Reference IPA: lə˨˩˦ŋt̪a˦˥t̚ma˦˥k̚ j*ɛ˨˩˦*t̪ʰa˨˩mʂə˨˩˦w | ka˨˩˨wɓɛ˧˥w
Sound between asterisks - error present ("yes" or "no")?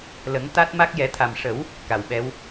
no